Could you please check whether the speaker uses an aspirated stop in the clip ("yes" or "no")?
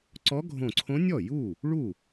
yes